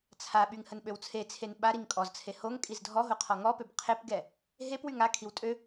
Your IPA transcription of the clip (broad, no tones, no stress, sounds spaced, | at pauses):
t͡sʰ a ɓ y ŋ h ə n ɓ ø w t͡sʰ e t͡sʰ e n ɓ a ɾ i ŋ kʼ ɔ z t͡sʰ e h o ŋ kʼ i z dʱ ɔ ɦ o qʰ ɔ ŋ ɔ p ø b qʰ e p ɡ ɛ | ɦ e p w y ŋ a kʰ i w tʼ ø